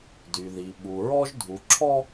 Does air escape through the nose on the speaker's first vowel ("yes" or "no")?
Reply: no